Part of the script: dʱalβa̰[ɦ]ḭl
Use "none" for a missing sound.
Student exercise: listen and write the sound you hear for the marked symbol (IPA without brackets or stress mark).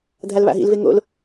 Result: ɦ